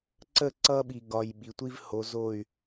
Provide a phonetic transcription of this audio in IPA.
ǀə˦˨ǀʌ˦ɓi˨ ɡɒ˨j ɓi˨tʷi˦vho˨˦ zo˦˨y̯

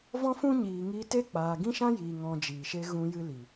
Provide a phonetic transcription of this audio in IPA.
vɔ̃˦ fũ˦ ɲiː˨ŋiː˧te˦ k͡paː˨ɡĩ˦ʃã˦jiː˨ ŋɔ̃˧d͡ʒiː˨ʃe˦ ɣũ˦jɨ˦li˨

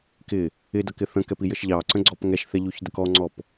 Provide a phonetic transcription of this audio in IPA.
kɪ | ɪdʌkɪ θə̃kɛpijəʃ ʎɑǀə̃ɡ͡ǀɔp ŋɛʃθɛʎuçdək ɔŋ͡ǀɔp

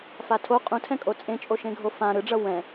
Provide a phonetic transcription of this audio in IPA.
fatʰo qʼũtʰɛ̃kʼo t͡sʼẽt͡ʃʼoʃẽɡʱo fã ɾɯɖ͡ʐʌ wɛ̃

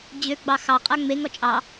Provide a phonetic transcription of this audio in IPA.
d͡ʑø ɡ͡bɑxɑqʼa ŋ͡meŋɔ t͡ʃʼɑ

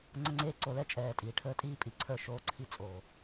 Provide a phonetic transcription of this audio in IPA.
ŋ͡ǀə˦ŋ͡ǀeː˦ ǀo˨lɛ˦t͡ʃʼɛː˨ tʼiː˨ʈʰəː˦tʼiː˦ pʼi˨ǀʰə˞˦˨ ʃoː˦ǀʰi˦ t͡sʼoː˨

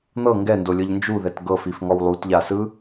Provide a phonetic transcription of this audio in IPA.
n̪ɤ ŋɡɛndolʲɤʎ nd͡ʒuðɛt ɡɤfifŋɔw lˠutʎasɯ

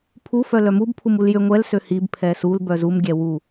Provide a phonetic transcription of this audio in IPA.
pʰufœ lœmub pʰumuljø ŋʷɛlsø hib pʰɛsul bœzumɡʲɛ wu

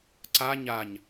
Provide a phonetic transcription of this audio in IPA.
ǀa ɲaɲ

